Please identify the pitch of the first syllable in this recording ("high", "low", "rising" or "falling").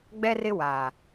high